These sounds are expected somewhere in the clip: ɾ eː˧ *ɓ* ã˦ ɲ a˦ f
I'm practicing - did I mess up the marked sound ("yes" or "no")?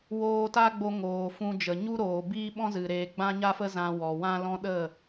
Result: yes